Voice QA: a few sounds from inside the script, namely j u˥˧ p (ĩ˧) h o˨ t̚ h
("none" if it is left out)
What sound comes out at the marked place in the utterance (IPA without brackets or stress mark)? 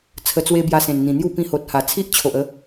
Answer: ĩ˧